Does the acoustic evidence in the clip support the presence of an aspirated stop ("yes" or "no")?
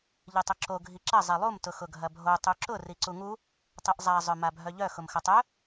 no